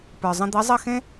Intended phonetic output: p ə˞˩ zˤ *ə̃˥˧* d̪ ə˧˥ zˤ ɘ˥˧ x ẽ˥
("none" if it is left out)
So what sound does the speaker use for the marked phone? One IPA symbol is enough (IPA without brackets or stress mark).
ə̃˧